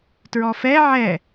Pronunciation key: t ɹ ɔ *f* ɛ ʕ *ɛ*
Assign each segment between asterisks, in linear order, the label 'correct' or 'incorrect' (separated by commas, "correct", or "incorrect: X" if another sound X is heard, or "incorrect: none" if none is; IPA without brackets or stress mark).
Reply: correct, correct